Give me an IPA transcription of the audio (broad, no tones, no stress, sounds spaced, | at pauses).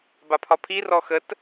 b a pʰ ɒ pʰ i r ɔ x ə t